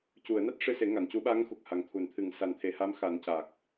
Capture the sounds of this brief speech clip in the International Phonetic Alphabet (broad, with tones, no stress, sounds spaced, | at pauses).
c u˨˩˨ ə̯ n a˦˥ t̚ ʂ ɨ˧ s e˨˩˦ ŋ a˨˩˨ n c u˨˩˦ ɓ a˧˥ ŋ x u˨˩ k̚ h a˨˩ ŋ t̪ʰ u˨˩ n t̪ʰ ɨ˨˩˨ ŋ s a˨˩˨ n t̪ʰ e˨˩ h a˧˥ m x a˨˩˦ n c a˨˩ k̚